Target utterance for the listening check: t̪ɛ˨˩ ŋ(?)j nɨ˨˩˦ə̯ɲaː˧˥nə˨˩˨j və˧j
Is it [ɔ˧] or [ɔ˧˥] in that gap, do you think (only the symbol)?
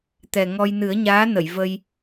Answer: ɔ˧